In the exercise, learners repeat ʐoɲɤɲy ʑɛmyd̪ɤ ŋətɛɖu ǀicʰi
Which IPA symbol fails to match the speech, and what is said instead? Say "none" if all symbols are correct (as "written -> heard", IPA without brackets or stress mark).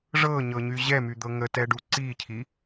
o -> ɤ